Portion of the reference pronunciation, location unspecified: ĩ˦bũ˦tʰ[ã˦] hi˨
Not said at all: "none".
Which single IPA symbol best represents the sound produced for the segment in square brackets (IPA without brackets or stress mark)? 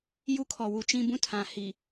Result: ã˨